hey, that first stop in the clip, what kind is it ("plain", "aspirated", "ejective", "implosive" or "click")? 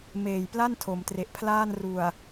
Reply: plain